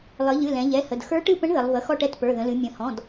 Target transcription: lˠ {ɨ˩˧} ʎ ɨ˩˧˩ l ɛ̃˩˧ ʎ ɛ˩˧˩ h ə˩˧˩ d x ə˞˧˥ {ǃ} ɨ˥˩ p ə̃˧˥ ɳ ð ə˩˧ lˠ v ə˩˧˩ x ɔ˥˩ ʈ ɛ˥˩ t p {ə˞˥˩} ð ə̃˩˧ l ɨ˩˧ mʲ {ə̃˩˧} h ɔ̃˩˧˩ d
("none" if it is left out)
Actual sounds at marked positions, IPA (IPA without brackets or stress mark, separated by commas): ɨ˩˧, ʈ, ə˞˩˧˩, ə̃˩˧